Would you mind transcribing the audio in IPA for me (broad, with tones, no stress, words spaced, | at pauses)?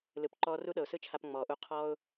lɯ˨pǃɔː˧ ru˦ɗɤ˨ʊ̯sɯ˦t͡ʃʰa˧p ŋ͡mɔː˨ʔu˧ qʰɔː˦ʊ̯